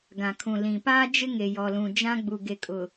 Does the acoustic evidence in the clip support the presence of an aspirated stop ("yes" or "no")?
yes